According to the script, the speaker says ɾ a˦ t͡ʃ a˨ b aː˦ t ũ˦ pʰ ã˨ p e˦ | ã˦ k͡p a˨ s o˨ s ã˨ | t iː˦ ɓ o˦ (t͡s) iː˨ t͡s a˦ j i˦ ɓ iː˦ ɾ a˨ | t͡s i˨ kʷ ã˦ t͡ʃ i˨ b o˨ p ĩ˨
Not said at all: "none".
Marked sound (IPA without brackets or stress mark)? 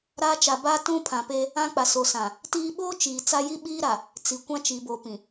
t͡ʃ